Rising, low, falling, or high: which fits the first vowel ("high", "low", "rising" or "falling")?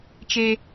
high